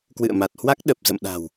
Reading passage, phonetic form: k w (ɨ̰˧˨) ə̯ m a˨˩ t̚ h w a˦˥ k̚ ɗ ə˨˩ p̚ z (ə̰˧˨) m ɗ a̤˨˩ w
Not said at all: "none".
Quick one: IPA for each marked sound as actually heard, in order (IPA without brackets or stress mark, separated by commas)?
ɨ̰˧˨, ə̰˧˨